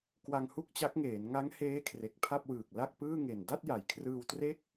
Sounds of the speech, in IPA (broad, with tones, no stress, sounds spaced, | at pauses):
k w a˧ ŋ h u˥˩ k̚ t͡ɕ a˦˥ k̚ ŋ eː˩˦ n ŋ a˦˥ ŋ h eː˦˥ kʰ r e˨˩ k̚ pʰ a˥˩ p̚ w ɯː˨˩ k̚ l a˥˩ k̚ p ɯː˥˩ ŋ e˨˩ n d a˥˩ t̚ j a˩˦ j kʰ r ɯː˧ w t r e˥˩ k̚